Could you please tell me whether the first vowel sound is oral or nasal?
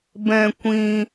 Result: nasal